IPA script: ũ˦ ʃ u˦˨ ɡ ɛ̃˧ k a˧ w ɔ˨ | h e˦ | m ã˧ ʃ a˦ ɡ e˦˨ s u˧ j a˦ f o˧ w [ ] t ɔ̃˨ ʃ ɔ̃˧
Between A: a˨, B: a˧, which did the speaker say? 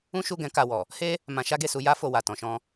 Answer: A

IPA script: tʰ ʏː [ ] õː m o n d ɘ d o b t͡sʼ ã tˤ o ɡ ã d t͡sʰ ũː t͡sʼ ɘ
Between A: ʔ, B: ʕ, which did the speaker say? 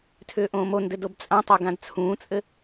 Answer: A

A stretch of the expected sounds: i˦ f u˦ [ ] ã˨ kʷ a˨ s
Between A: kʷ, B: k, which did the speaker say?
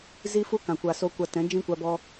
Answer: B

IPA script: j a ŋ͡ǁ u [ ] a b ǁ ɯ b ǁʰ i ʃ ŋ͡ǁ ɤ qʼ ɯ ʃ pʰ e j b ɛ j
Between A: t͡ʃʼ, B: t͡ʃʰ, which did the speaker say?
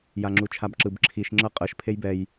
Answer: B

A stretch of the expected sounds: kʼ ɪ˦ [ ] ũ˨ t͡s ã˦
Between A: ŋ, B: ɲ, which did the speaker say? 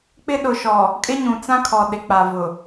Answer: B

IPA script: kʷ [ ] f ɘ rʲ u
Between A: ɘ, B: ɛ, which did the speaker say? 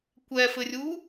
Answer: B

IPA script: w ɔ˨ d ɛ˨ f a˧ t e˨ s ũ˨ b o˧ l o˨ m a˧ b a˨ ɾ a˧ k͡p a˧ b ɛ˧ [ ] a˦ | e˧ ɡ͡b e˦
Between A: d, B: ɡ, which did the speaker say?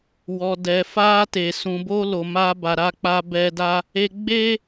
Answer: A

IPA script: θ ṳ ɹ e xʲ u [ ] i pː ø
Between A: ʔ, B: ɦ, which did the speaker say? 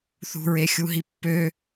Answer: B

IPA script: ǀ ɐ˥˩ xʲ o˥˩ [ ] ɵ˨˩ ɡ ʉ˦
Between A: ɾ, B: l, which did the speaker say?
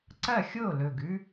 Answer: B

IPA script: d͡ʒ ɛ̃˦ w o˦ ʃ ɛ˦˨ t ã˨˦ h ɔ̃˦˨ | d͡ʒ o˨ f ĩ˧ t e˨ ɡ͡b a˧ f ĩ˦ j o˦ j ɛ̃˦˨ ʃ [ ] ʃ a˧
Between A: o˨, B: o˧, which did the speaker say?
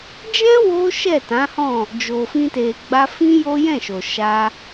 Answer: A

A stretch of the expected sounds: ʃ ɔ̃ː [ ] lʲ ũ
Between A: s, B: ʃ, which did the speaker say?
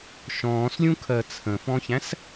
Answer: A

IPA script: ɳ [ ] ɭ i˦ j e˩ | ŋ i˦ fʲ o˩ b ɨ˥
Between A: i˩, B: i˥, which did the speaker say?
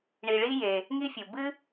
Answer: A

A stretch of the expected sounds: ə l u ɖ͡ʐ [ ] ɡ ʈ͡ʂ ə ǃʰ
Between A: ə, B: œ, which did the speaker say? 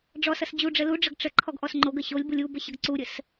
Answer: A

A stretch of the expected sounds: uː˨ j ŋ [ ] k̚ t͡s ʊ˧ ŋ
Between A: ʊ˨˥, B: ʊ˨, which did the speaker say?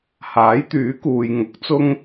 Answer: A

